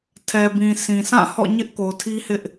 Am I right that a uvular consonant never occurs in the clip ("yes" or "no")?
yes